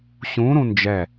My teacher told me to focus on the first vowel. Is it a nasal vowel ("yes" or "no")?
yes